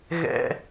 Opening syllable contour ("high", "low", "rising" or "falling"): low